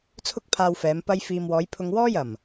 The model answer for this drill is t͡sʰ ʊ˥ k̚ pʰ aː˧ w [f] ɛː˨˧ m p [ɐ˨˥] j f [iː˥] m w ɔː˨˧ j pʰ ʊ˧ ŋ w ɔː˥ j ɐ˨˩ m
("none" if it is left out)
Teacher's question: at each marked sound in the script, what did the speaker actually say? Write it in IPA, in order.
f, ɐ˧, iː˨

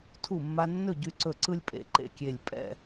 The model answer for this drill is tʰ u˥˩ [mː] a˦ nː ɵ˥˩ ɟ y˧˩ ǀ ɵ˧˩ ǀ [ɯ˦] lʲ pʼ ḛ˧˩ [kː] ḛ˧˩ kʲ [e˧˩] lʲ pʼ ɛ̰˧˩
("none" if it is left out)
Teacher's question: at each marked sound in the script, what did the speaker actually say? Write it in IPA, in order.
mː, ɯ˦, ǃ, e˧˩

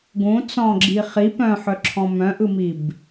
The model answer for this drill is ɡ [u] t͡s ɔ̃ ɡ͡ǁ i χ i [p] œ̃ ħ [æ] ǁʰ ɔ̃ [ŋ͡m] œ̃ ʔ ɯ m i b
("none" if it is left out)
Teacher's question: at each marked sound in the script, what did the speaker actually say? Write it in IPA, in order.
ũ, p, œ, m

